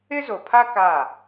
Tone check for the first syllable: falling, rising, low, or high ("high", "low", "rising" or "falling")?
high